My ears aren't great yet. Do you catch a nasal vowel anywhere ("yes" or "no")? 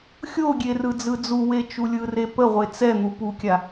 no